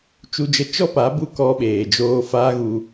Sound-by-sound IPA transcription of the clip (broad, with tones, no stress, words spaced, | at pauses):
t͡ʃu˧d͡ʒə˧ t͡ʃɔ˦pa˨˦bu˧ kɔ˧ɓeː˨d͡ʒoː˧ faː˦ɣu˧